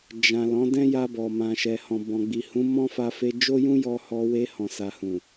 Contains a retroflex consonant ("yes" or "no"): no